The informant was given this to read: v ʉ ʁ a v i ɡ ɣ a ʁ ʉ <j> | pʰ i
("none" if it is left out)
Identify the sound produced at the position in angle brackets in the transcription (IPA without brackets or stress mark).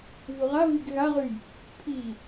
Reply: j